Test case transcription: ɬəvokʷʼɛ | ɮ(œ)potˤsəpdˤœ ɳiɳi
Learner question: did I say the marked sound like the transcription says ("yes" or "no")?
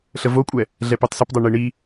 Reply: no